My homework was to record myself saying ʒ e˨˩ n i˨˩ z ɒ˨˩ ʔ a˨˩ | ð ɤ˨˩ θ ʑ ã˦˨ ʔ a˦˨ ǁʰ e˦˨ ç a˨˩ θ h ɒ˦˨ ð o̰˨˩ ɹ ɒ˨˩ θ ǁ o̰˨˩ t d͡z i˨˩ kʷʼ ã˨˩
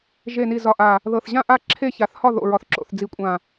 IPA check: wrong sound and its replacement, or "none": t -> θ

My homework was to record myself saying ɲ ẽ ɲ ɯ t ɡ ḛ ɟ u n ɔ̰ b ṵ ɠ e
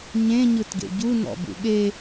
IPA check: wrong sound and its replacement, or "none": none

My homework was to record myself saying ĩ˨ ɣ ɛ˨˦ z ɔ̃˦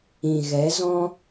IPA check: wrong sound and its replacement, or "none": none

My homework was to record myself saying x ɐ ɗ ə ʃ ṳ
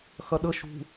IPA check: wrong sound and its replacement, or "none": none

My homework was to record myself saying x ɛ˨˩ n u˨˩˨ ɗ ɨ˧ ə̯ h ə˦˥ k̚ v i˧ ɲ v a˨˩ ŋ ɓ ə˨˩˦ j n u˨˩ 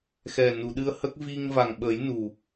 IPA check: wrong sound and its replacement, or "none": ɲ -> ŋ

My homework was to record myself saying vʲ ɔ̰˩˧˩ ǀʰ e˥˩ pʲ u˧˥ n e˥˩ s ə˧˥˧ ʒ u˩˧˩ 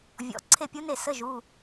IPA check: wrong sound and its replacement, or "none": none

